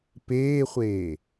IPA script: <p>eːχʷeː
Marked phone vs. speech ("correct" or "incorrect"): correct